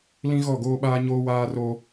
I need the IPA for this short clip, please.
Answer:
lĩ˦ɣɔ˦˨ɡoː˦ɓaː˦ ɲoː˦waː˦ro˦

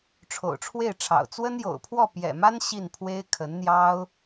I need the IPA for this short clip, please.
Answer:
ʈ͡ʂʰo̰˨˩ʊ̯ʈ͡ʂʰwe˥˩ɪ̯ʈ͡ʂʰɑ̰˨˩ʊ̯ t͡swə˥njo̰˨˩ʊ̯pʰwɔ˥˩ pjɛ̰˨˩ma˥n ɕi˥˩npʰwe˥ɪ̯kʰə˧˥nn̪jɑ˥ʊ̯

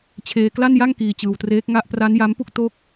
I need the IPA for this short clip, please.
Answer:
t͡ɕʰeː˧kla˥˩nja˥˩ŋ kiː˧t͡ɕɯː˧wtreː˦˥k̚ ŋa˦˥ʔpra˦˥nja˦˥mpu˥˩k̚ to˥˩k̚

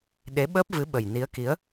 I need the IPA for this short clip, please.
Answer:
ɗe˨˦ɓəː˦˥p̚vɨ˨˦ ɓə˨˩jni˨˦ə̯ki˨˦ə̯

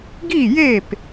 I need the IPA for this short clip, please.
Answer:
ɡi˥˨je˥˨p

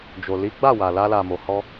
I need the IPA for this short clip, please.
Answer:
d͡ʒo˨li˨˦ɡ͡ba˦˨wa˨ la˧la˨mo˨hɔ˧

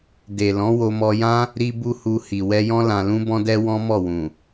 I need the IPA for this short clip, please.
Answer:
de˨ lɔ̃˨˦wo˧mɔ˧jã˦ | ɾi˧bu˧ hu˧ hi˨wɛ˧jɔ̃˦ lã˧lũ˦bɔ̃˦dɛ˦ wɔ̃˦mɔ˦˨wũ˨

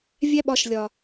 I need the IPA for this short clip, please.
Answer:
vʲæ˦ɓɒ˧ʃ lʲɒ˨

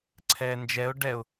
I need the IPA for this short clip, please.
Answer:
ǀʰɛːnd͡ʒɛʊ̯ ɖɛʊ̯

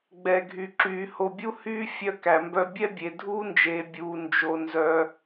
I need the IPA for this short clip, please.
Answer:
ɡ͡bɛ˨ɡʱy˨ǁyː˨ ho˨bʲu˦hyː˦ fʲœ˦kæ˨mbœ˦ bʲɛ˦bʲe˨dʱuː˦nd͡ʒeː˨ bʲuː˧nd͡ʒo˧ nzœ˧

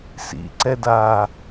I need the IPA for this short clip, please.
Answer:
sḭǀɛdaː

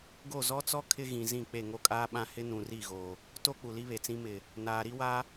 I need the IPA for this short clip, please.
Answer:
ɡo˦˨zɔ˦t͡sɔ˦ kʰɪ˦ɣĩ˨zĩ˦˨ k͡pe˦˨ŋo˦kʼaː˦ɓã˦ hɪ˦nũ˨ri˦˨ɣo˨ | to˦ k͡pu˨li˦βe˨t͡sĩ˦ mɪ˨ | naː˨ɾi˦wa˦

